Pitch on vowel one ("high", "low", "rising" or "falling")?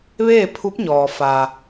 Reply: falling